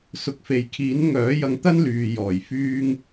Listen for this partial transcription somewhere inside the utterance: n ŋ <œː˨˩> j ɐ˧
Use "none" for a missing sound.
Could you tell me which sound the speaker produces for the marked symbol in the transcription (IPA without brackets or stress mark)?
œː˨˥